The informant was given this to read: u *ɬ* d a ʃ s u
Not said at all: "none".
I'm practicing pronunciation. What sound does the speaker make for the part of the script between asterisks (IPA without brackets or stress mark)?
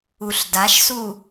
ɬ